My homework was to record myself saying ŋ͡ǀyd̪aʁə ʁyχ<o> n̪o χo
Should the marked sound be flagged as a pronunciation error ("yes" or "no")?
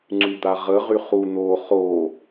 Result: yes